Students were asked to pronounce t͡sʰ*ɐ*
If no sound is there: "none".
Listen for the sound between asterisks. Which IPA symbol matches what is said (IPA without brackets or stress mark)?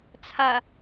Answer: ɐ